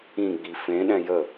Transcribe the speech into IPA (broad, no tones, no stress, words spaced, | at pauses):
ĩɡ͡bi fẽ ɗɛ̃jə